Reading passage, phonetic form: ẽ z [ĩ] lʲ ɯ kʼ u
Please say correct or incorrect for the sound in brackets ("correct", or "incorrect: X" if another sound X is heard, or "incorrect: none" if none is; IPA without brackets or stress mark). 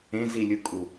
incorrect: i